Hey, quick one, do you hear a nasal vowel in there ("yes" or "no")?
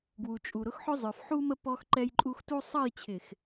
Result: no